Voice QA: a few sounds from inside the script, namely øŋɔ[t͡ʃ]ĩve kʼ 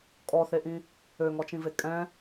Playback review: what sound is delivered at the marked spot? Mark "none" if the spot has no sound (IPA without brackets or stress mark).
t͡ʃ